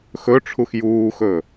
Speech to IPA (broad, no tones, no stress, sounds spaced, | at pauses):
x ɵ ʈ͡ʂʰ u x j uː x ɵ